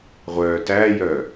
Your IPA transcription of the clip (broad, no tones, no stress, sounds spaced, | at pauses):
ʁʷ œː t æː j œː